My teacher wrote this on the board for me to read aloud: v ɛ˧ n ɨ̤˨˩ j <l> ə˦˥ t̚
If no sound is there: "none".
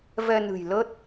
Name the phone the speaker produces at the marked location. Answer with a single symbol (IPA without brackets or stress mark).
l